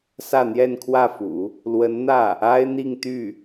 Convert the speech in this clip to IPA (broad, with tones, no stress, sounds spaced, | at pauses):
s ä˥˧ n̪ j ɛ˥˧ n kʰ w ä˥˩ f ṵ˨˩˦ | l w ə˧˥ n n̪ ä˥˩ | a˥ ɪ̯ n̪ i˥˧ ŋ t̪ y˥˩